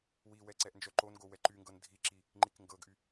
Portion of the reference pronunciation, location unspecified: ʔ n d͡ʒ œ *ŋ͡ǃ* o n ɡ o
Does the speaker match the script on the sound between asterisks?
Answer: no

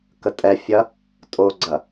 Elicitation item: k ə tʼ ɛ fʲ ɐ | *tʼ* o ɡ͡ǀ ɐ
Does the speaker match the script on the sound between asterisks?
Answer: yes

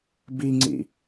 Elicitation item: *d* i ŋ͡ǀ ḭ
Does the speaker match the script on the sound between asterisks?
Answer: no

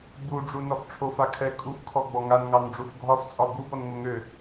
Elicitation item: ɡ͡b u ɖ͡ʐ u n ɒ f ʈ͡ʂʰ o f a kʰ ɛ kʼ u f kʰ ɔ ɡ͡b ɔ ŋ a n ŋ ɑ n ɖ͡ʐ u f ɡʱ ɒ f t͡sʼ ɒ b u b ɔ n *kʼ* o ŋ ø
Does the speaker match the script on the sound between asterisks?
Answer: no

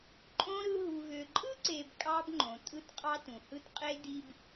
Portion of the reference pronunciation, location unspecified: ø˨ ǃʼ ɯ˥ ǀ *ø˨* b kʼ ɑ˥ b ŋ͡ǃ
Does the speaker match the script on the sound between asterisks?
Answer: no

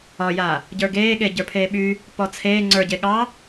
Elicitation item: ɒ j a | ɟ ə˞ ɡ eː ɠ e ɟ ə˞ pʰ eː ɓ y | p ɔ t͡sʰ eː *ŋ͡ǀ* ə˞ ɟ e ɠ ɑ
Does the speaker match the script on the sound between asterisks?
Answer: yes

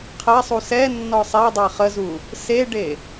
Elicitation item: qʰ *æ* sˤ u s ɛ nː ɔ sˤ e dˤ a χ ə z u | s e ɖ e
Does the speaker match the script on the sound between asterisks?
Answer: no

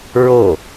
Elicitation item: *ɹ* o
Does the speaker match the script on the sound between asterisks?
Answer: yes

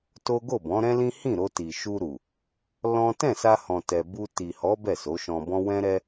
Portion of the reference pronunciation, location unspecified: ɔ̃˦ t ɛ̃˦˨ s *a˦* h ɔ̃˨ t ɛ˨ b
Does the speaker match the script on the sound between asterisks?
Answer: no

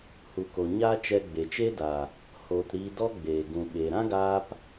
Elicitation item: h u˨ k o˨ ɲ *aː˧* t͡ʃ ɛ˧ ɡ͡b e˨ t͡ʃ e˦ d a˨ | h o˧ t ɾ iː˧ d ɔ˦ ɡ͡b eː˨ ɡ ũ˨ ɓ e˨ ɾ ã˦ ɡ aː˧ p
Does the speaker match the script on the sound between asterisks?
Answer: no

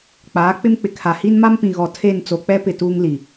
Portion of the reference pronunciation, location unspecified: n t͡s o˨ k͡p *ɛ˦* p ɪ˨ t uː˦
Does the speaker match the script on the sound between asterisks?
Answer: yes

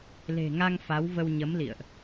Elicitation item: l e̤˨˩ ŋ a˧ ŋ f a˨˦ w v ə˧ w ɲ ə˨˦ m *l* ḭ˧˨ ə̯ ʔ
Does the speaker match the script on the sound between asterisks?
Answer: yes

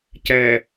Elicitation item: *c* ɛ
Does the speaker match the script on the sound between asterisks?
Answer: yes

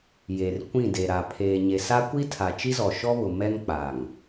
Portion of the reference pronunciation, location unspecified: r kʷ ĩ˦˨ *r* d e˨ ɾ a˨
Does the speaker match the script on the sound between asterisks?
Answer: no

